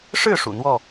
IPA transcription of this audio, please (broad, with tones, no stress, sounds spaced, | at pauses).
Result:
ʂ ɻ̩˥˨ ʂ ṵ˨˩ n̪ w ɔ˥˨